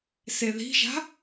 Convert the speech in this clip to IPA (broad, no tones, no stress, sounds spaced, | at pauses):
s e ð i̤ ʒ a̤